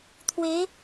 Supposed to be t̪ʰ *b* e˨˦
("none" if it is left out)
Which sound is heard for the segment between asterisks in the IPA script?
w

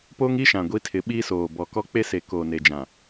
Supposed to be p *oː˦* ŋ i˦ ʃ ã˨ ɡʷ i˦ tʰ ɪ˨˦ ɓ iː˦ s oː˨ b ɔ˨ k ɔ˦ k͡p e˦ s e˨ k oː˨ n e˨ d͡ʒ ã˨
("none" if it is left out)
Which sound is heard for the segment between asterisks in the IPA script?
oː˦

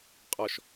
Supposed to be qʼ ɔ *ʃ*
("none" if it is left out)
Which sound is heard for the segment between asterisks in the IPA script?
ʃ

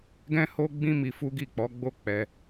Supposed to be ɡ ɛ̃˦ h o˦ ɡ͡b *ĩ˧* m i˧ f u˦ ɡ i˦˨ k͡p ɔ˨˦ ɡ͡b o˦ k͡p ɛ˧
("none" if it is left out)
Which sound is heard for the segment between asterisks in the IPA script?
ĩ˦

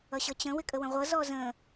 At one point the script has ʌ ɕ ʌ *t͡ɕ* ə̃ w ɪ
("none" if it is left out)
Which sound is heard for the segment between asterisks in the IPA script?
t͡ɕ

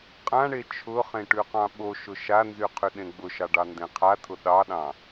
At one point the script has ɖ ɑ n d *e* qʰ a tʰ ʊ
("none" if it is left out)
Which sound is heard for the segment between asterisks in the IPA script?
ẽ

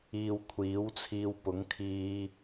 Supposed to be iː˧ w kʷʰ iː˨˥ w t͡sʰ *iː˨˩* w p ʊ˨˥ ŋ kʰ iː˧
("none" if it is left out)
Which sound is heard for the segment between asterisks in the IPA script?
iː˧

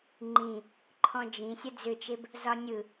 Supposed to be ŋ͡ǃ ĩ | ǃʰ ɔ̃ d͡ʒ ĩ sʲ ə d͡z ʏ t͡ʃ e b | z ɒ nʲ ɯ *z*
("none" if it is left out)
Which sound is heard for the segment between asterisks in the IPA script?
none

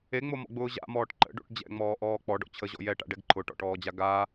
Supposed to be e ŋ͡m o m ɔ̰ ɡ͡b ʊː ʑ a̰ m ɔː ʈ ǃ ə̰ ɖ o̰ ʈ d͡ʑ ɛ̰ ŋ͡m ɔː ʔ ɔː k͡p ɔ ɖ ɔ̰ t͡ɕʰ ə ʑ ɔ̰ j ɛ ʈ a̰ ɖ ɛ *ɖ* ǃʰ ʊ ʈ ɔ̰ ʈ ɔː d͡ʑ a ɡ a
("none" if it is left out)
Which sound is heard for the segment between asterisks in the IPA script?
ɡ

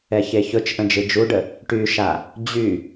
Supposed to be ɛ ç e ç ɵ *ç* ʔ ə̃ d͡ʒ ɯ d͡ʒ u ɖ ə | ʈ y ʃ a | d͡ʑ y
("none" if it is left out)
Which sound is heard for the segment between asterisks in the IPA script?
t͡ʃ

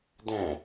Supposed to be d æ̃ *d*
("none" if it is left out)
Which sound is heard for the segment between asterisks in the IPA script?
none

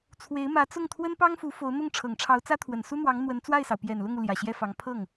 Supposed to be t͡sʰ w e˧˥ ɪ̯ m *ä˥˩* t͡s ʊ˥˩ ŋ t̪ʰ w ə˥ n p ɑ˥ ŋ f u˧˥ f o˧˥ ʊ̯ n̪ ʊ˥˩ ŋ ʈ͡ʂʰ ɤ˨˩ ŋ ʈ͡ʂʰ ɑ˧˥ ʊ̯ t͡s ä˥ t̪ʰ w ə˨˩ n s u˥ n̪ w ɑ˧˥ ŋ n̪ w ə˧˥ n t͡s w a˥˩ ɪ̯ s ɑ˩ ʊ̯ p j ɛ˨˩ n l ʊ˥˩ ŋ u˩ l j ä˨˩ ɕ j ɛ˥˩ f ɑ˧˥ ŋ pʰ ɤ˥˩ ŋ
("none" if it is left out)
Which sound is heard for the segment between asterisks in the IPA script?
ä˧˥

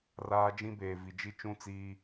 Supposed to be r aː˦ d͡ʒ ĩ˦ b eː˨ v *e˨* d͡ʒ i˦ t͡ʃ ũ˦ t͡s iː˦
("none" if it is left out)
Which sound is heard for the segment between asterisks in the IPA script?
i˨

